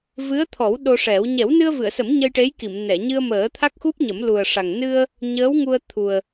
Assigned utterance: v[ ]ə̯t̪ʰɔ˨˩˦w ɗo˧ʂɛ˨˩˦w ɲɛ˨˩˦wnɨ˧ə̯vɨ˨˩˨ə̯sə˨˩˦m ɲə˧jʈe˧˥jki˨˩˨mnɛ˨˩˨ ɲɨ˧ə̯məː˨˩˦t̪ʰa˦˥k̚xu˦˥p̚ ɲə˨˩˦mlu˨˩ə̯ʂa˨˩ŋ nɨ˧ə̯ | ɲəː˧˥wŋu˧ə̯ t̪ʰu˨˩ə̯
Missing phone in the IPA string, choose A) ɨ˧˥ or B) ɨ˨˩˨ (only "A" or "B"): A